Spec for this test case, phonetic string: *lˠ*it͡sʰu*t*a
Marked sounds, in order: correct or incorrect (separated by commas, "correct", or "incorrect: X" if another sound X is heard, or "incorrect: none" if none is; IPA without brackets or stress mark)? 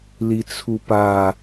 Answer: incorrect: l, incorrect: p